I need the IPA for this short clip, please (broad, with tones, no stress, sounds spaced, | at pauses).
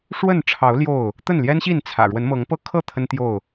ʂ w ə˥˨ n ʈ͡ʂʰ ɑ˨˦ ʊ̯ l j o˥˨ ʊ̯ | t̪ ə˥˨ n l j ɛ˦ n ɕ i˥˨ n t͡sʰ ä̰˨˩ ɻ w ə˨˦ n m ɤ˨˦ ŋ p ɤ˦ kʰ ɤ˥˨ t̪ʰ ə˦ n t̪ j o˥˨ ʊ̯